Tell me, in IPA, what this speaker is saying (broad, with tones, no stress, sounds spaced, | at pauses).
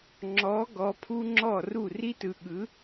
ŋ͡ǁ ɔ˧˥ ɡ ɔ˧˥ pʰ u˥ ŋ͡ǁ ɔ˥˨ r u˥˨ r i˥ t ɯ˧ ɠ ɯ˧˥